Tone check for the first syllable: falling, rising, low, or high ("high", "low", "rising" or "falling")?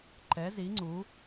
rising